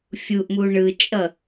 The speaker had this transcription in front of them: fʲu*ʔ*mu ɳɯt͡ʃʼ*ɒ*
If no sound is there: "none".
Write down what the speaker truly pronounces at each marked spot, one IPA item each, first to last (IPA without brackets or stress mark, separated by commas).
ʔ, ʌ